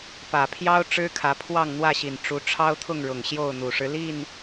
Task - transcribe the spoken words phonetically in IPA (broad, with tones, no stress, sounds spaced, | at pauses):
p ä˨˩ pʰ j ɑ˦ ʊ̯ ʈ͡ʂ ɻ̩˦ kʰ ä˨˦ pʰ w ɑ˥˨ ŋ n̪ w ä˥˨ ɕ i˨˩ n ʈ͡ʂ u˨˦ ʈ͡ʂʰ ɑ˦ ʊ̯ t̪ʰ ʊ˥˨ ŋ ɻ ʊ˨˩ ŋ ɕ j o˥˨ ʊ̯ n̪ u˨˩ ʂ ɻ̩˦ l i˥˨ n